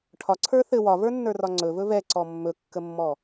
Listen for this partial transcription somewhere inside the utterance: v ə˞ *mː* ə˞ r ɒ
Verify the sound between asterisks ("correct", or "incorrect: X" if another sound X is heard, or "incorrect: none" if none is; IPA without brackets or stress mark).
incorrect: nː